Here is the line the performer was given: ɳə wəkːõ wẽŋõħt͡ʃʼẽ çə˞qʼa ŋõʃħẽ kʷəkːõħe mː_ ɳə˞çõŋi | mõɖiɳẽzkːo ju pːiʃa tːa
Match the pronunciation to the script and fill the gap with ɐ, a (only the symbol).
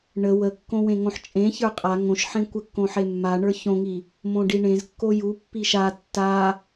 a